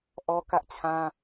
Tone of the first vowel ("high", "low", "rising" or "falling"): high